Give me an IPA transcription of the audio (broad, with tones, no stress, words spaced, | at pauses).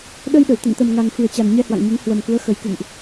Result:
ɗə˧jɗə˧˩w t̪ə̰˧˨nt̪ə˨˩mŋa˨˩ŋ fɨ˨˩ə̯t͡ɕa˨˩n ɲɛ˧hwa̰˧˨ŋɲu˨˦ŋ hwə˨˩mku˨˦ə̯xə˨˩j kɨ̰˧˨ŋʔ